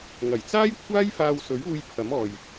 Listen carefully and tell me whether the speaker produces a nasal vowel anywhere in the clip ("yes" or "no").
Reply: no